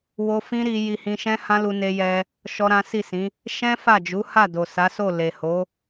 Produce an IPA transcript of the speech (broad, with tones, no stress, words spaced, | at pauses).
wo˦ fĩ˦ɾi˧ ji˧hĩ˧ʃɛ̃˦ hã˦lu˧ne˧jɛ˧ | ʃɔ˦ɾã˦ si˦˨sĩ˨˦ | ʃɛ̃˦ fa˦˨d͡ʒu˨˦ha˦˨ do˨sa˨˦so˦˨ le˨ho˨˦